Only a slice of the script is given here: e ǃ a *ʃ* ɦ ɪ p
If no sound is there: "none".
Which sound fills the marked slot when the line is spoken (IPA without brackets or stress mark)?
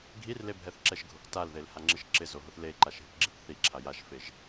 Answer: ʃ